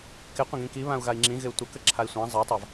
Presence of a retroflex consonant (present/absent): absent